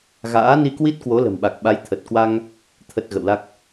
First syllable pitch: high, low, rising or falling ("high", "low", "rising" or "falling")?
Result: rising